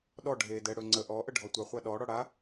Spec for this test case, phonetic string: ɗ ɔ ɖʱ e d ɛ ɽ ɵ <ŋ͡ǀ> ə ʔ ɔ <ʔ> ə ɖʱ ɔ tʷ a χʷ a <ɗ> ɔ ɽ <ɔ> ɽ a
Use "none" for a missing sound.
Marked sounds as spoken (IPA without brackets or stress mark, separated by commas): ŋ͡ǀ, ʔ, ɗ, ɔ